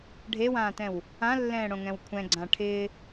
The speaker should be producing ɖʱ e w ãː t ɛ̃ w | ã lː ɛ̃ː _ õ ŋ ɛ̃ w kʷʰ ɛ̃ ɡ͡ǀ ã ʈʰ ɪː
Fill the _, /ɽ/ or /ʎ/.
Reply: ɽ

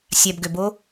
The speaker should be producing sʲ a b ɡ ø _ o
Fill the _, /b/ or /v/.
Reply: b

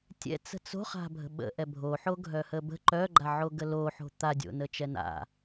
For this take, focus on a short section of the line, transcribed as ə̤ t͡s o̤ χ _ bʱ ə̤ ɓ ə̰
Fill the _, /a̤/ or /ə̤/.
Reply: a̤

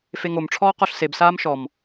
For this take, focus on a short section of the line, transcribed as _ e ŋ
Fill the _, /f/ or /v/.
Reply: f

